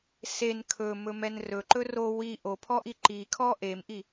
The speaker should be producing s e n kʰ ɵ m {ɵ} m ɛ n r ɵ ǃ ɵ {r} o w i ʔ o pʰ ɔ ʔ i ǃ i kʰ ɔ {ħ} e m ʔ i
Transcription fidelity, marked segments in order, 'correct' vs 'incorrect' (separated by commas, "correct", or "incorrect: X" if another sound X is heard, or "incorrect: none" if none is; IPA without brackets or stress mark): correct, correct, incorrect: ʔ